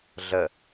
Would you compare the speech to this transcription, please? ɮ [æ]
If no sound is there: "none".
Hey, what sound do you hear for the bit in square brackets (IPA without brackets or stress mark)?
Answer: ə